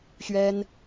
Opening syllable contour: high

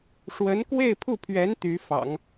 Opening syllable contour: rising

